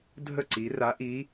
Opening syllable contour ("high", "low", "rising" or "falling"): falling